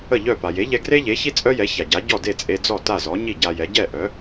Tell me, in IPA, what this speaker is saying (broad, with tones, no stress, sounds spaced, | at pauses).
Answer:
ə˥˩ ʎ œ˥˩ p a˩ j e˩˥ ʎ ɛ˧ ɡ r e˥ ʎ e˩˥ ç i˥ t͡sʼ œ˥ j ɛ˩˥ ç a˩ ɟ a˩˥ ɟ ɔ˥˩ d e˥˩ t͡sʼ e˧ d͡z ɔ˥˩ t a˥˩ z ɔ˩˥ ɲ i˥˩ ɟ a˧ j ɛ˩˥ ɟ ɛ˥˩ ʔ œ˩˥